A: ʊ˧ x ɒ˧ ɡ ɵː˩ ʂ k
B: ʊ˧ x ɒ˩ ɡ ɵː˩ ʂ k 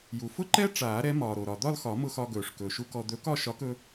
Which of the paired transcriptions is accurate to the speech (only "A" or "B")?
A